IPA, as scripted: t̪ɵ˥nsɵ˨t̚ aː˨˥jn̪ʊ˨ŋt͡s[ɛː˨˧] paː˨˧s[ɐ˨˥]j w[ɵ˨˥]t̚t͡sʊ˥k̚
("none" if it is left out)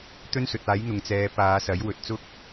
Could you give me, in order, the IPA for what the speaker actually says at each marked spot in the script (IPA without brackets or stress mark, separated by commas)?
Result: ɛː˨˧, ɐ˨˥, ɵ˨